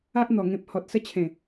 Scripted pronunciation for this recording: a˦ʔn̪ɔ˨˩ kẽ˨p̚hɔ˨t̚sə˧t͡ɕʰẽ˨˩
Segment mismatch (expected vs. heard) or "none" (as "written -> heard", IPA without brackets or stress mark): k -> ŋ